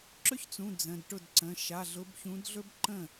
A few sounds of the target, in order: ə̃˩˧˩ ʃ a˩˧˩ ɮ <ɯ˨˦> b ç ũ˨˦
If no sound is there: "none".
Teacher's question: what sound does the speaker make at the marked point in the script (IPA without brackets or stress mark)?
ʊ˨˦